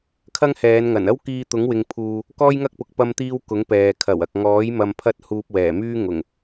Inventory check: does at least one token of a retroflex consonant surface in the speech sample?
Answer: no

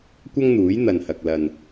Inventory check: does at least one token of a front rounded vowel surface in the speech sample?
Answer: no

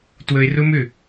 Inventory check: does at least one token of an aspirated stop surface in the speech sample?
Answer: no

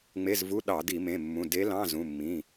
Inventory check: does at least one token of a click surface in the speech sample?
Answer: no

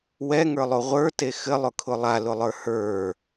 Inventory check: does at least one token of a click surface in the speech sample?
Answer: no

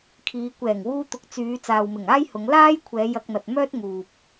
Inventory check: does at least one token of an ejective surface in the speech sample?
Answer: no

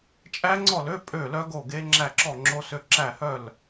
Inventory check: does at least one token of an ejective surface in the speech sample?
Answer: yes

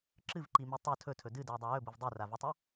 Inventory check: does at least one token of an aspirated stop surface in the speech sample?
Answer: yes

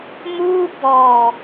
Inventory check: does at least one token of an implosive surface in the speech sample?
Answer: no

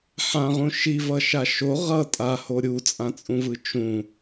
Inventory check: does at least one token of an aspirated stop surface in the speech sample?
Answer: no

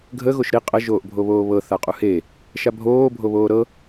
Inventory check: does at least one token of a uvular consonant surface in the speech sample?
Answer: yes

